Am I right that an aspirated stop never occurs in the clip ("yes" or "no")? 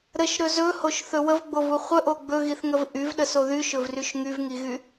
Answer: yes